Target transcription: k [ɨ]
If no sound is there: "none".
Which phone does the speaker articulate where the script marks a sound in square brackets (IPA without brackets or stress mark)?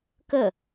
ə